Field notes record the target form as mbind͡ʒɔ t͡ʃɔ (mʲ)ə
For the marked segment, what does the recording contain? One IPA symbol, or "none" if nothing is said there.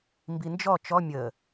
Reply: mʲ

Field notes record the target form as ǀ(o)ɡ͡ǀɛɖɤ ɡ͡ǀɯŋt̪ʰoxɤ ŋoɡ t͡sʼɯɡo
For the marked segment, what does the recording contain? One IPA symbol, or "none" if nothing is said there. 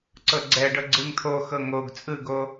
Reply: ɤ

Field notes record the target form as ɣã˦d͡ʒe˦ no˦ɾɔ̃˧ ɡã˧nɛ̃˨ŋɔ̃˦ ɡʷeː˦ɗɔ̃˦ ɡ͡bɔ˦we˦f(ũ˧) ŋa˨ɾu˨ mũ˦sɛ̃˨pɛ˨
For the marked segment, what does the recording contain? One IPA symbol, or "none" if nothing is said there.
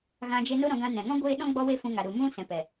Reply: ũ˧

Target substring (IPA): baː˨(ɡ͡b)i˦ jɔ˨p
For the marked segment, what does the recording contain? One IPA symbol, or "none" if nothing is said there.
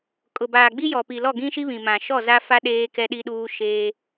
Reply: ɡ͡b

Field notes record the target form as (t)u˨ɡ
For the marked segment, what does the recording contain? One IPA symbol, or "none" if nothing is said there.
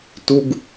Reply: t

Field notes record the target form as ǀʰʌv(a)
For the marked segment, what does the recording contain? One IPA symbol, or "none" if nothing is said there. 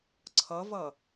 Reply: ʌ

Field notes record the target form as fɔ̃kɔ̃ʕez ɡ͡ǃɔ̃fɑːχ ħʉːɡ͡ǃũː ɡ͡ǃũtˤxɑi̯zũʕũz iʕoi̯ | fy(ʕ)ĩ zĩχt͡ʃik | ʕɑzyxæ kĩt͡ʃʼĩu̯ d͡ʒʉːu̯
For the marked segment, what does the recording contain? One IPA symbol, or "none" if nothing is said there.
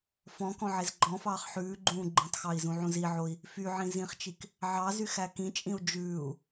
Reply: ʕ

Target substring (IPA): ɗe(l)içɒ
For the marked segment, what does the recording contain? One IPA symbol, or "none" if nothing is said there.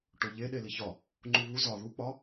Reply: l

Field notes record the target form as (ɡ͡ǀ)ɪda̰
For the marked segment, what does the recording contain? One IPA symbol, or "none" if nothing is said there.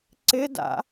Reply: ǀ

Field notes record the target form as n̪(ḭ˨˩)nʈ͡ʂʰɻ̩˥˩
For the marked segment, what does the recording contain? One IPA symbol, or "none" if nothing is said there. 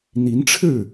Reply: i˧˥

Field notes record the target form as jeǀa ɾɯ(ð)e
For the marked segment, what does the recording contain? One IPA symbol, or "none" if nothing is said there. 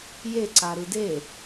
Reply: d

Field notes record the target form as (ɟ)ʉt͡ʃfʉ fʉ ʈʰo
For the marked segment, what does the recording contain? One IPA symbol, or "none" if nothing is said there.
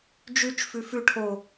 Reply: d͡ʒ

